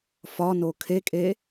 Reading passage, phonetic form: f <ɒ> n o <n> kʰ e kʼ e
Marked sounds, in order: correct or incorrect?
correct, incorrect

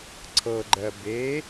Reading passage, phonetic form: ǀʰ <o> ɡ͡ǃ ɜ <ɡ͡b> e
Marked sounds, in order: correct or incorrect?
incorrect, incorrect

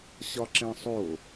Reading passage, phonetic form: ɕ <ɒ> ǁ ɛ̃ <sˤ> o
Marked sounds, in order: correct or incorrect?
correct, correct

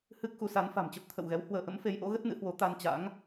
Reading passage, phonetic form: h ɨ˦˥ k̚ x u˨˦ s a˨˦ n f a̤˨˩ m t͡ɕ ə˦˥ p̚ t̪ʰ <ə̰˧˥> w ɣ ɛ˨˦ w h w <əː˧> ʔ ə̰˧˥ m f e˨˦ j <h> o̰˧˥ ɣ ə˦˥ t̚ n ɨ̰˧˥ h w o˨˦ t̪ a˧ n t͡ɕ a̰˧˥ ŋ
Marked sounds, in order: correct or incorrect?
incorrect, correct, incorrect

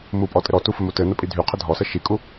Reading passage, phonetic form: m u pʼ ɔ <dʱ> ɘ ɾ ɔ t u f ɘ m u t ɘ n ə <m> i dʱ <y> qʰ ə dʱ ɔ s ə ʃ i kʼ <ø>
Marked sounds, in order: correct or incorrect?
incorrect, incorrect, correct, incorrect

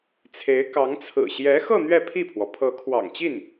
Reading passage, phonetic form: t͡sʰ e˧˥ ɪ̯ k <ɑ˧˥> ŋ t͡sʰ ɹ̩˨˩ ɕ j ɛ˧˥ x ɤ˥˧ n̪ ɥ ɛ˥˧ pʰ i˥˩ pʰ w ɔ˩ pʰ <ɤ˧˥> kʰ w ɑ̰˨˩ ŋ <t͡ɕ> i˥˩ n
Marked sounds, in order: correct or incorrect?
correct, correct, correct

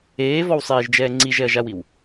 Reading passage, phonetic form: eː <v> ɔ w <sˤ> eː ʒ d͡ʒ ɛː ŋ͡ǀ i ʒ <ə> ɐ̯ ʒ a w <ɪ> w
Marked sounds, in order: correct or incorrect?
correct, correct, incorrect, incorrect

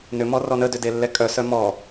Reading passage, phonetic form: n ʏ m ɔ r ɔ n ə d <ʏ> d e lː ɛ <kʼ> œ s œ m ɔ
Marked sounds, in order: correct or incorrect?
correct, correct

